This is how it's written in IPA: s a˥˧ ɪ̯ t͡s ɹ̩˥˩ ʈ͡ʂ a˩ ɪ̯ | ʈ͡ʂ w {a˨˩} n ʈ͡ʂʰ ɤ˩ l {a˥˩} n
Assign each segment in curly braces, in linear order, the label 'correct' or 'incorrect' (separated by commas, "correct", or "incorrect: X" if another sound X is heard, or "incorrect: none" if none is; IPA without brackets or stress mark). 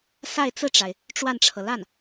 incorrect: a˥˩, correct